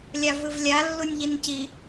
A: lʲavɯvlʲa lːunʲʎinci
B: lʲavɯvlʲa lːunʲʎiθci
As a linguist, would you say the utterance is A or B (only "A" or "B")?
A